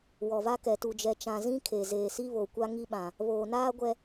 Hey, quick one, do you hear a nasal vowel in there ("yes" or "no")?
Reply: yes